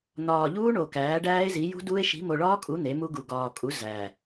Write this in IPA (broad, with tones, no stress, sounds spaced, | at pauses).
n̪ ɒː˨˩ ʎ uː˦˥ ɳ o˨˩ k æː˩˥ ɖ æː˦˥ e̯ z i˩˥ j ṳ˦˥ d uː˦˥ e̯ ʃ i̤˩˥ m o˨˩ ɭ ɒː˦˥ kʼ u˩˥ n̪ e˩˥ m u˦˥ ɡ u˨˩ ɡ ɒː˨˩ kʼ u˩˥ z æː˨˩